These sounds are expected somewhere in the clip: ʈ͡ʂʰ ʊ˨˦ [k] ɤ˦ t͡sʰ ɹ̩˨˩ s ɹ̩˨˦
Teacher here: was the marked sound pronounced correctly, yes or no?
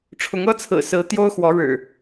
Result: no